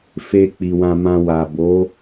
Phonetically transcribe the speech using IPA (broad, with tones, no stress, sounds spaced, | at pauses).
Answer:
f e˧ k͡p i˨ w ã˧ m ã˧ w a˨ b o˨˦